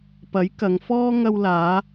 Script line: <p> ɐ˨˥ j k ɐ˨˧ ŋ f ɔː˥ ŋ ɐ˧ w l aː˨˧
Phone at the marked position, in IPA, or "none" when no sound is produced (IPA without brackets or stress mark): p